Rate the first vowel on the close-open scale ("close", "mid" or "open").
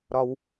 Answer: open